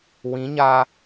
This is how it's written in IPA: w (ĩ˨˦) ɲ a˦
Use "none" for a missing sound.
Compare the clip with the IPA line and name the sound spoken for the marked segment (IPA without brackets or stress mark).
ĩ˨˦